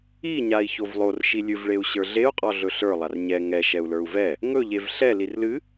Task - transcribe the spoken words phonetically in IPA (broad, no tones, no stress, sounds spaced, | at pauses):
i ɲ a i̯ ç o v lˠ o r ʃ i lʲ ɨ v ɭ e u̯ ɕ ə˞ ɮ e u̯ qʼ ɔ ɮ ɵ ɬ ə˞ lˠ a r ɲ ɛ ŋ ɛ ʃ ɛ u̯ l ə˞ u̯ v ɛ | ŋ ɵ ʎ e v ɬ ɛ l i r l ɨ